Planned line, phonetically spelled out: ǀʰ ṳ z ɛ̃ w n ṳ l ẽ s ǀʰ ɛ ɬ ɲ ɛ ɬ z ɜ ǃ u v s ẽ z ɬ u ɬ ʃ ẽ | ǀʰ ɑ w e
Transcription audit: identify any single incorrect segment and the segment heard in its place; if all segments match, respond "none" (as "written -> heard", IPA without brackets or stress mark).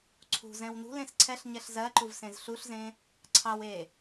ʃ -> z